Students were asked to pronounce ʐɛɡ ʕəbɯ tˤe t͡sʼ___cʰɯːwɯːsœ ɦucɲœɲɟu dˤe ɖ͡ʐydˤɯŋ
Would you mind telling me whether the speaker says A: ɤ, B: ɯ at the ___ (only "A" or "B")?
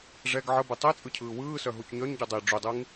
B